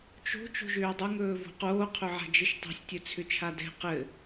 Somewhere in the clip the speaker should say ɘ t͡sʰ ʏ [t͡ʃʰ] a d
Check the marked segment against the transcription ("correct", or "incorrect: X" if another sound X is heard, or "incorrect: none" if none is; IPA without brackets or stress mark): correct